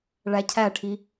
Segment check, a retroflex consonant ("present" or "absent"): present